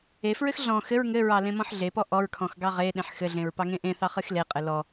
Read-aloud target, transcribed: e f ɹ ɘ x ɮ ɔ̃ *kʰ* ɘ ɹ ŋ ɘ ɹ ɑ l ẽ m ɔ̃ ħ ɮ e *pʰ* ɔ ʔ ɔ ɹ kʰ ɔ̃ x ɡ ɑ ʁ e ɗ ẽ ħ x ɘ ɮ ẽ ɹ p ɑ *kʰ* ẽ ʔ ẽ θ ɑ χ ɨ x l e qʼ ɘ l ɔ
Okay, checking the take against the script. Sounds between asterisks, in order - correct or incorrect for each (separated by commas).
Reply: incorrect, incorrect, incorrect